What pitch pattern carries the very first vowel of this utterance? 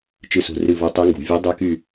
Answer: falling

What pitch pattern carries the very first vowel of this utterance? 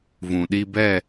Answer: low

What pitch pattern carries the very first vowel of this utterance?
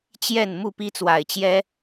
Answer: falling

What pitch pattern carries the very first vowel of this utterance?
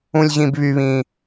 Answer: high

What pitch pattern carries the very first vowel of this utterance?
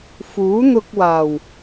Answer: rising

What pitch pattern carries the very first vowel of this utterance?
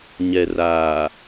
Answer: low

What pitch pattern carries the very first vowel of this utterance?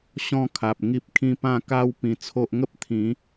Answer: falling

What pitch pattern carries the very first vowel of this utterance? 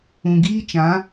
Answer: low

